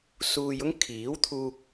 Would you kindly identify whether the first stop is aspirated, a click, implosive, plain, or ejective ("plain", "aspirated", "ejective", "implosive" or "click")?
aspirated